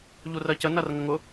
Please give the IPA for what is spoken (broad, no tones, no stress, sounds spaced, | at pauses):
ʎ u r ɜ c ə n ɐ r ŋ ə ŋ ʊ